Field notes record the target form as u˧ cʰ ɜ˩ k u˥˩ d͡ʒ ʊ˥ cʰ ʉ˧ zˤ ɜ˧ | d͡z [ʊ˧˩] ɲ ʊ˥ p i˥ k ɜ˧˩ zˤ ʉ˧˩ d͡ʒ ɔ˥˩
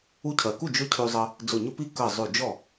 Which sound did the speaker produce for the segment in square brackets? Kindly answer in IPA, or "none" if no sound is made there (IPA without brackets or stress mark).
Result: ʊ˧˩